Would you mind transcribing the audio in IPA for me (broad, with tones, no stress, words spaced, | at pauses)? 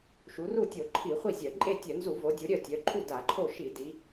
ʃu˩˧ru˥˩tʲo˧˩˧ ǃʰi˧˩˧χʷi˥˩zʲœ˧˩˧ ǃʼe˥˩tʲœ˧˩˧ nzu˧˩˧vo˩˧dʲu˩˧ ɾʲœ˥˩tʲœ˩˧ǃʰu˥˩ da˧˩˧ǃʰo˥˩ ʃi˧˩˧ di˩˧